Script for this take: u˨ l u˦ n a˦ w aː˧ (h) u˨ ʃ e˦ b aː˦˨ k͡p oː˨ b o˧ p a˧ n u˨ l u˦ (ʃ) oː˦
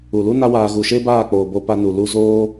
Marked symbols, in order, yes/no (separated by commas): no, no